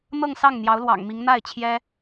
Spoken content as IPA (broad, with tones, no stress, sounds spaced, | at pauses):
n̪ ɤ˥˧ ŋ s ɑ˥˩ ŋ n̪ j ɑ˧˥ ʊ̯ l w ɑ̰˨˩ ŋ m i˧˥ ŋ n̪ a˥˩ ɪ̯ t͡ɕʰ j ɛ˥